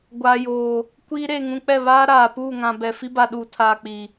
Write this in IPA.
ɡʷ aː˨ j oː˨ | kʷ iː˦ ɾ eː˨ ŋ ũ˨ k͡p ɛ˦˨ β aː˦ ɾ aː˨ p uː˦˨ ŋ ã˨ b ɛ˨ f i˦ b a˨ ɗ uː˨ tʰ aː˨ k͡p i˨

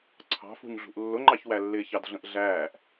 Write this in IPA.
ǀʰ ɑ̤ f ṳ ɲ ɮ ṳ ʔ lː ʊ ŋ͡ǃ ɑ ç w æ lː ɪː ç ɑ d ɮ ə̃ ʔ ɮ æː ʔ

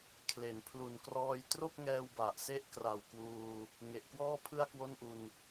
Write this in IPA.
kʰ l e˩˦ n pʰ l u˩˦ n k r ɔː˧ j t r o˥˩ k̚ ŋ ɛː˧ w b a˨˩ ʔ s e˥˩ ʔ k r a˨˩ w k w uː˧ | ŋ e˨˩ ʔ k w ɔː˥˩ pʰ ɯ˥˩ a̯ k w o˥˩ n ʔ u˧ n

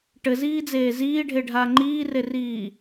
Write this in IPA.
ʈ ɘ z iː d͡z eː z iː ɖʱ e ɖʱ aː ŋ͡ǃ iː r e r iː

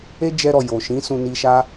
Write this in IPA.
e˦ d͡ʒ ɛ˧ ɾ ɔ˨ j o˨ ʃ ĩ˨˦ s ũ˧ n i˧ ʃ a˦

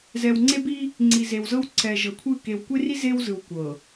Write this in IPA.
z ɛ˨ w ŋ͡ǀ e˦ b i˦ | ŋ͡ǀ i˨ z e˨ w z ɤ˦ w ǀ ɛ˨ ʒ ɤ˨ kʷʰ ɯ˦˨ k e˨ w kʷ e˦ r i˦ z e˦ w z ɯ˨ w kʷ ɤ˨

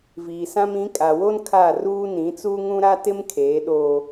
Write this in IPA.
v iː˨ s ã˦ m ĩ˨˦ kʼ a˨ w o˦ n kʰ a˦˨ r uː˦ n ĩ˨˦ t͡s uː˦ ŋ ũ˦ ɾ a˦ t ɪ˦ m kʰ eː˨˦ ɗ oː˦

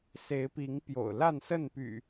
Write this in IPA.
s e˨˦ ɪ̯ p i˨˦ ŋ p j o̰˨˩ ʊ̯ l a˥˨ n s ə˥˨ n p y̰˨˩

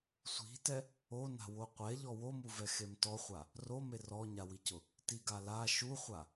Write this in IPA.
sʷ i̤ t ɛ | o n a̤ w o qʷ ɛ ʎ ɔ w o m u v ɛ x e m t ɔ χʷ a | r o m e r ɔ ɲ a w i c ʊ | t i ɡ a l a ʃ u χʷ a

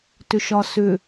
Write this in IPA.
t ʏ ʃ ɒ s ʏ

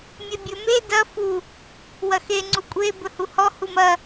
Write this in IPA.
mʲ e bʲ ɵ m e d ɐ f u | w ɐ x e ŋ͡ǀ u kʷʼ e b ɵ h u h ɔ h u m ɐ

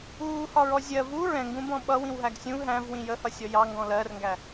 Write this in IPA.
uː h ɒ ɹ ɔ zʲ ɜ v u ɹ ɛ̃ ŋ ɡ ũ b ɔ̃ ɓ ʌ w ĩ w ɦ æ ɡ sʲ ũ ɦ æ̃ v w ĩ j ə h ʌ sʲ ɔ j ɑ ŋ ɡ ɔ̃ l ɜ r ŋ ɡ æ

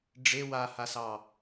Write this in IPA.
ɖ͡ʐ e w a h a s ɑ

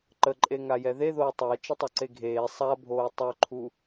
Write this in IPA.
ǃ ə ǃʼ e ŋ a j ɛ ð e ð oː tˤ əː t͡ʃ ə tˤ o ǀ e ɡʱ eː sˤ a bʱ oː tˤ œ ǃʰ u

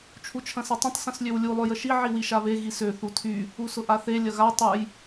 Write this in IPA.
t͡ʃʰ u t͡ʃʰ ɐ̃ s ɐ tˤ ə̃ tˤ s ə̃ s lʲ ø w lʲ u lˠ ø j ə ʃ i ʕ i w i ʃ a β e ɣ i s ø θ u tʰ y | u s ʊ ʔ a θ e lʲ ɐ ɣ a tˤ ʊ j

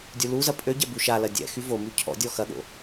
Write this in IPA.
dʲ u l u z ɐ pʼ ø ɟ ɛ b u ʃ a l ɐ dʲ ɛ̰ x y v o m y cʰ ɔ̰ dʲ ɔ x ɐ ɠ o̰

